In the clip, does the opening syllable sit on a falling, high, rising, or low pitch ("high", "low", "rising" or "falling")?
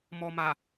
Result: low